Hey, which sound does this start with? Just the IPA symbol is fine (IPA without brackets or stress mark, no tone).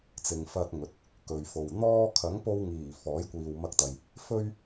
t͡s